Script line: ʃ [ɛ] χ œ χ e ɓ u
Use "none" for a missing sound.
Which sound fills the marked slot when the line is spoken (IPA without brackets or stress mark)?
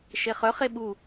e